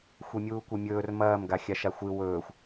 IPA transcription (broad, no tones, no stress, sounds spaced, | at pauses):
xʷ e mʲ uː kʷ e mʲ ɵː r m ɐː m ɡ a xʲ a ʃ a xʷ ɨ w ɵː xʷ